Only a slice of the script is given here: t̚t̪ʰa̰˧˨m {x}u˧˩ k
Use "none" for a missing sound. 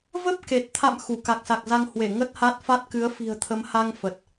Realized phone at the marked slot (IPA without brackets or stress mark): x